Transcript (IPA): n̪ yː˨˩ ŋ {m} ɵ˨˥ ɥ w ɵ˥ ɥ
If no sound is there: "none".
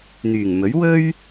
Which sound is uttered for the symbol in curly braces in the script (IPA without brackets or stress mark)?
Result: m